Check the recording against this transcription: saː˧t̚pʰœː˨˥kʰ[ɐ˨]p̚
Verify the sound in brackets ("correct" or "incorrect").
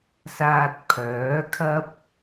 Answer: incorrect